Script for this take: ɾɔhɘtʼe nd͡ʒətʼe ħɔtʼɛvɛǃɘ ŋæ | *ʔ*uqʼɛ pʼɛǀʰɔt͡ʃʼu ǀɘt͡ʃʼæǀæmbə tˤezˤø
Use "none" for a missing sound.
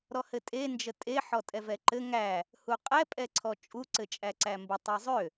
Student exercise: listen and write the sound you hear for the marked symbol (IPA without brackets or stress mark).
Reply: h